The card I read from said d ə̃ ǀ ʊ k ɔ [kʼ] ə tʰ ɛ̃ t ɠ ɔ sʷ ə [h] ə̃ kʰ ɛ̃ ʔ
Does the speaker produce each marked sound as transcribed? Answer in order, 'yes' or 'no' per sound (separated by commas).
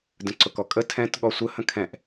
yes, yes